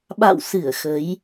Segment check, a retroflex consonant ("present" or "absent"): absent